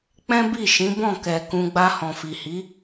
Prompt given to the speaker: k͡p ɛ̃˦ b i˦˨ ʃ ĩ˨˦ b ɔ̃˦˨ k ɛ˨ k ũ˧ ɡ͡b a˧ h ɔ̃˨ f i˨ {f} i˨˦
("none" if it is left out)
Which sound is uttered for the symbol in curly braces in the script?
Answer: h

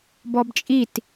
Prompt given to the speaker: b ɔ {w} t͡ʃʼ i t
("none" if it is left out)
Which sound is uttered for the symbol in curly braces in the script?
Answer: b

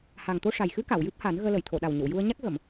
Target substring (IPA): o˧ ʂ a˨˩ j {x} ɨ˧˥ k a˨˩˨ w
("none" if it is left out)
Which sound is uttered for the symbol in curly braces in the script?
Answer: x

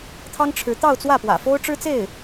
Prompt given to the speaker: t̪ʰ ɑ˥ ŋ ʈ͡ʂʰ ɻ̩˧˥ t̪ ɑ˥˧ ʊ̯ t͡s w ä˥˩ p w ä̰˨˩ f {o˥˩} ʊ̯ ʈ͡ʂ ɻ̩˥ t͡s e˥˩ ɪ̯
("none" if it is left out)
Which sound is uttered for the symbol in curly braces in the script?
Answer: o˥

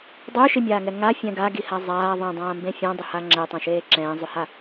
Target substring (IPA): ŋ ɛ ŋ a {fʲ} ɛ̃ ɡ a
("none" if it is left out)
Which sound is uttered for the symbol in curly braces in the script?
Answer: fʲ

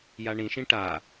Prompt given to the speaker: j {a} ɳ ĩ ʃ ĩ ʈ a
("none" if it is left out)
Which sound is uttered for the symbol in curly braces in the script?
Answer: a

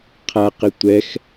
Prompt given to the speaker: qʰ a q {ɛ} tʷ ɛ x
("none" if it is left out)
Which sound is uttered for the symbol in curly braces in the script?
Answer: ɪ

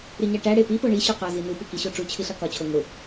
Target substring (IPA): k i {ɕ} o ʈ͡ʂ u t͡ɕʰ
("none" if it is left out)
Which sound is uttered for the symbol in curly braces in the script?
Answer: ɕ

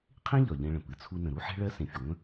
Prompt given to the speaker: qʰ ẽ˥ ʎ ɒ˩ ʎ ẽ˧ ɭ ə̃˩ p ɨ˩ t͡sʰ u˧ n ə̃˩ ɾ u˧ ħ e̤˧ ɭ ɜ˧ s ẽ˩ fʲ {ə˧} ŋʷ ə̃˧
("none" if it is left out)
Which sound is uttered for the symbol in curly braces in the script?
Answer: ə˩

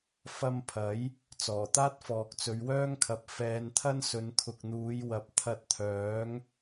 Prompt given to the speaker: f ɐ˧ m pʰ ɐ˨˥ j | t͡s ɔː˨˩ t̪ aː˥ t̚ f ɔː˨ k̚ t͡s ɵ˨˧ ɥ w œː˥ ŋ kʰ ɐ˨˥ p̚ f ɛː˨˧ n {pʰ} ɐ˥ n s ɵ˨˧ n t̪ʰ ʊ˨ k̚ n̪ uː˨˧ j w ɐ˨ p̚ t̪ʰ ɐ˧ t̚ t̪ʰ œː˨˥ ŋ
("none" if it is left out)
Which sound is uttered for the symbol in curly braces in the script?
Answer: t̪ʰ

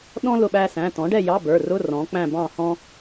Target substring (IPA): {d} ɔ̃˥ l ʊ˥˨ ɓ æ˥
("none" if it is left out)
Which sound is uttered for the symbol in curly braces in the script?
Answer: ɗ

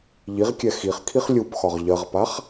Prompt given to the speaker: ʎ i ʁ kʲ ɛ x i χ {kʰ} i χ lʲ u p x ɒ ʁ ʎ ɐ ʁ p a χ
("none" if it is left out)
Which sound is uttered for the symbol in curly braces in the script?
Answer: kʰ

